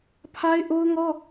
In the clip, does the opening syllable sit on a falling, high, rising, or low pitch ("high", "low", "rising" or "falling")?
high